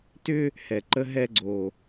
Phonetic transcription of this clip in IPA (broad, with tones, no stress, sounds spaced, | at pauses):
t ʏ˦ | h ɛ˨ ǃ ə˦ ɦ ɛ˦ ɡ͡ǀ o˨